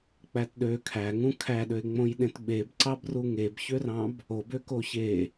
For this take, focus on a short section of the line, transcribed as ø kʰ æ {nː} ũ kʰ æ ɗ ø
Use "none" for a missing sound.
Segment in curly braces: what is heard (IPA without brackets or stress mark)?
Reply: ŋ